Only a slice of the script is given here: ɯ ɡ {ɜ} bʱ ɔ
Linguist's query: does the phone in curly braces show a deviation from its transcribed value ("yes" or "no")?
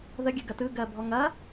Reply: no